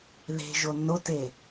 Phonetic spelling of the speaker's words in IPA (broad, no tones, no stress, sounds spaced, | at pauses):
ð e̤ ʒ o nː o t e